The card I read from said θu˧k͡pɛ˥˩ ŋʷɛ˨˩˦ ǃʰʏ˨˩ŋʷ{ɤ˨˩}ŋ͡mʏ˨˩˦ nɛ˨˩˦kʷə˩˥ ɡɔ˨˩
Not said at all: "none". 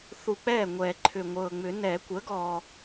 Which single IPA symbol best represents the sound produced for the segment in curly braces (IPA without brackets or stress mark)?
ɤ˨˩